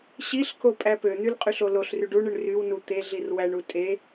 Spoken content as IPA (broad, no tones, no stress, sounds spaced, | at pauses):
ɕ i ɬ k o pʼ æ p ø n̪ y l qʼ y ɬ o l o ɬ r y ɖ u ɳ ɯ ɳ r y w n u t̪ e ɮ i r w æ ɳ u tʼ e